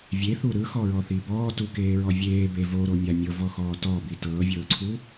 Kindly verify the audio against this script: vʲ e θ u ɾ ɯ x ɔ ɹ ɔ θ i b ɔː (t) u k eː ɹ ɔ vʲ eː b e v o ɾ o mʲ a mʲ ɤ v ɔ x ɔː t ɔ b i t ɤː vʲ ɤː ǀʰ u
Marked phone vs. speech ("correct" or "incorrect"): correct